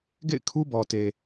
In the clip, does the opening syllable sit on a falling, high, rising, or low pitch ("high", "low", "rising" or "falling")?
falling